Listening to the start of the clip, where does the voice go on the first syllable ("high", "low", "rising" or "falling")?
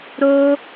high